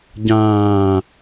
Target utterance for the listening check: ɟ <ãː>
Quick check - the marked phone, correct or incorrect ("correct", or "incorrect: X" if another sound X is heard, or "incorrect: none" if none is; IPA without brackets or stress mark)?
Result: correct